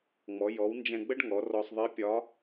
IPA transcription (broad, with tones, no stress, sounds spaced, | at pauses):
ŋ͡m ɔ˩˧ j ɔ˩˧ w n d͡ʒ ɛ̃˧ ɡ͡b ə˥ ɖ ŋ ɔ˩˧ r ɔ˧ sˤ ðˤ i˧˥ pʲ ɒ˧˥